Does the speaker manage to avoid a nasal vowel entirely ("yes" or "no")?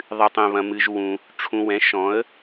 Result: no